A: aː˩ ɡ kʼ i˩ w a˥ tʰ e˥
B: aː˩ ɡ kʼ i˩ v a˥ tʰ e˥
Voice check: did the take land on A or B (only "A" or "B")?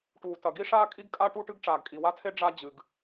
A